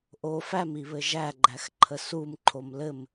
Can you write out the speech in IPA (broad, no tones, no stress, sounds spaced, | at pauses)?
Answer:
ʔ o f æ m i β ɘ ʒ æ ɡ͡ǃ æ x ǃʰ ə s u m ǃʰ o m l ɘ m